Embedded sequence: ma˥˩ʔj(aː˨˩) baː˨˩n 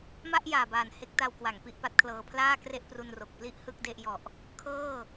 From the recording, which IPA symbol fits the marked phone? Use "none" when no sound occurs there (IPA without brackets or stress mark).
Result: aː˨˩